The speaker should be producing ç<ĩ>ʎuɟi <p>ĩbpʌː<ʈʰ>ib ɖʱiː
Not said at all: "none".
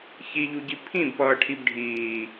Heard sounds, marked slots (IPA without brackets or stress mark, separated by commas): i, pʰ, ʈʰ